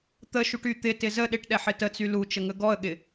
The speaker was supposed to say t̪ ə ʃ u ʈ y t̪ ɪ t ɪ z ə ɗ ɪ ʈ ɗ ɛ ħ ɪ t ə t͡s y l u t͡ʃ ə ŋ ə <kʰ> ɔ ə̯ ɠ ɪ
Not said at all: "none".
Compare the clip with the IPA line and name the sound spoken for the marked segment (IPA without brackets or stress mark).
ɡ